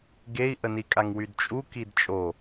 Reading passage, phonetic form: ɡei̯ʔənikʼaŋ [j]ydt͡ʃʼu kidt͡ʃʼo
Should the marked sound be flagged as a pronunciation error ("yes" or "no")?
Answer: yes